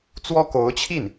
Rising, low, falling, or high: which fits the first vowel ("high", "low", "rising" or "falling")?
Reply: high